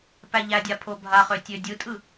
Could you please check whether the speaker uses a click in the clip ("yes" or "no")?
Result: no